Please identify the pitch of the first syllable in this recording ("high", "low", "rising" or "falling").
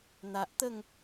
low